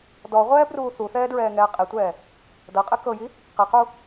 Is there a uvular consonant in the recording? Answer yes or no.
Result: yes